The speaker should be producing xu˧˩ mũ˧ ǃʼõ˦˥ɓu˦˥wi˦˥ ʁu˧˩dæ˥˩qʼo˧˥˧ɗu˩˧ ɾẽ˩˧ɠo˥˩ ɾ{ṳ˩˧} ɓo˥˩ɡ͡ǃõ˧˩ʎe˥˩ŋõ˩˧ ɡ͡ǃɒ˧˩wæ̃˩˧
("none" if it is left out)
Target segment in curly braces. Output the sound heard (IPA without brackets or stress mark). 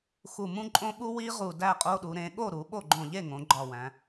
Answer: u˩˧